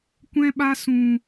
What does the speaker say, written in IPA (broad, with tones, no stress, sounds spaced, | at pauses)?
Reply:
kʷ ɛ̃˦ ɓ a˦ s ũ˧